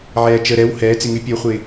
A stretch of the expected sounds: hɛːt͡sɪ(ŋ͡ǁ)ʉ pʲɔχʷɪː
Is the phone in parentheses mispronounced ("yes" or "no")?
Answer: yes